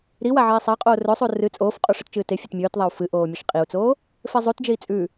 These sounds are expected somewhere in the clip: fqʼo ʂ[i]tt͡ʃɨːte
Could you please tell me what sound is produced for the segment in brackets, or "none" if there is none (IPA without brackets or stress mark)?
ɨ